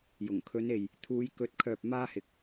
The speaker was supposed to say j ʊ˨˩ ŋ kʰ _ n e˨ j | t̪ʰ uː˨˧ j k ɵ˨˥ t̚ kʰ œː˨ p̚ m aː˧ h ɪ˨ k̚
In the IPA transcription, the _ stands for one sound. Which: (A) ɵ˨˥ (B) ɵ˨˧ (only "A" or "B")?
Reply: B